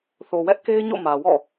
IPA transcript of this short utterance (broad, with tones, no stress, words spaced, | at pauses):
θo˨wɛ˦ʔke˦ɪ̯ɲo̰˦˨ mä˨wɔ̰˦˨